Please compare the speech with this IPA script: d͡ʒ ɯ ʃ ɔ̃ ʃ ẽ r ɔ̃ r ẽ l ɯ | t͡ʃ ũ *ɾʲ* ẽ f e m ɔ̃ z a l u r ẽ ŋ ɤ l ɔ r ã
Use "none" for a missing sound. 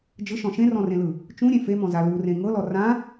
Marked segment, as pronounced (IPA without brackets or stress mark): ɾʲ